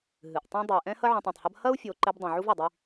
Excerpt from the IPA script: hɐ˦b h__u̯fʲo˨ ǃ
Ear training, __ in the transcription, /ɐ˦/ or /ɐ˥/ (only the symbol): ɐ˥